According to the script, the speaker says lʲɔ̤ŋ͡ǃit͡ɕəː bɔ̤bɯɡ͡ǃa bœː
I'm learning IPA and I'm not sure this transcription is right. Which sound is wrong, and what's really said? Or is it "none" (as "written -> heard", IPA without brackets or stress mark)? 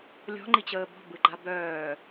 none